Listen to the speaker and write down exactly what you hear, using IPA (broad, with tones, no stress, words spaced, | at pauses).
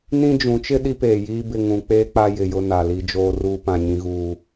nĩ˦d͡ʒũ˨˦t͡ʃɪ˦ ɗi˦peː˨jiː˦bɪ˦˨ ŋũ˦ k͡peː˦k͡pa˦ jɪ˨jʊ˦˨ na˨li˦d͡ʒoː˦ruː˦ pã˨ɲĩ˨ɣuː˨